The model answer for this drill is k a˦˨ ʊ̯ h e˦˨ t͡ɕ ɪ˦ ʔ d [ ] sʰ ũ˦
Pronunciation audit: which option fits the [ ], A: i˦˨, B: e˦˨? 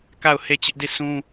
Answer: A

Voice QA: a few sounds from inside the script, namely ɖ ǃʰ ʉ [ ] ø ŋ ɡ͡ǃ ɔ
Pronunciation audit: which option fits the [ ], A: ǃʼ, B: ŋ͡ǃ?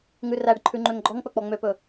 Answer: B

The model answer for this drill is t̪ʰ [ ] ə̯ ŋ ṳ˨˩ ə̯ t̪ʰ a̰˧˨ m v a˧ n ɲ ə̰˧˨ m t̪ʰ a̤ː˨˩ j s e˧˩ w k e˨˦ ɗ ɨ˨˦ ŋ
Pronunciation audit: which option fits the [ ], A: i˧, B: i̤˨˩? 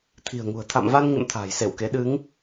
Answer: B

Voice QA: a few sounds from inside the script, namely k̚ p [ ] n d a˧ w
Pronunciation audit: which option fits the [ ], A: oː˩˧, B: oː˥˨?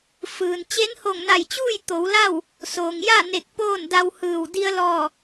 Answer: B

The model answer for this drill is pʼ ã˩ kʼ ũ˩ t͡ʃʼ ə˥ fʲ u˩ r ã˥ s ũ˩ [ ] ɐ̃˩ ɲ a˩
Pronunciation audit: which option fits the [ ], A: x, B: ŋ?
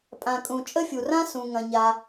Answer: B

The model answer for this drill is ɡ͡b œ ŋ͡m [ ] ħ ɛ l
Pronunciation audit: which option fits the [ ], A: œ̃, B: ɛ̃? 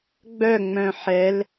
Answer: A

